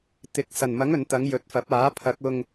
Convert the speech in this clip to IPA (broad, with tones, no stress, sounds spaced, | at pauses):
t̪ ɪ˨˥ k̚ s ɐ˨˩ n m ɐ˨˥ ŋ ɵ˨ n t̪ ɐ˨˧ ŋ j ɵ˨˥ t̚ f ɐ˨˥ p̚ aː˨˥ pʰ ɐ˨˥ k̚ ʊ˧ ŋ